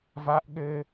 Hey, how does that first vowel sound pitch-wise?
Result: high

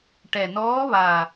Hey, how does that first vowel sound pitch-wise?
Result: low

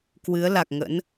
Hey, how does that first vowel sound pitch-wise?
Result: rising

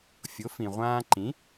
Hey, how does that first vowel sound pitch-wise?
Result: rising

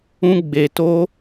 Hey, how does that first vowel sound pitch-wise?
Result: high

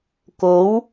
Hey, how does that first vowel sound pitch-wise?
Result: rising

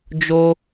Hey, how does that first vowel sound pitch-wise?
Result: high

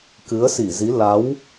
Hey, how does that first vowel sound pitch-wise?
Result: rising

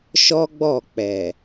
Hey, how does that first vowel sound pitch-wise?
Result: high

